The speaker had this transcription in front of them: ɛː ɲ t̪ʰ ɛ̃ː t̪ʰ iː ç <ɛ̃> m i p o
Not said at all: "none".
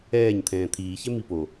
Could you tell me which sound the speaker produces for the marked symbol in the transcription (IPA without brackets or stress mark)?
ɛ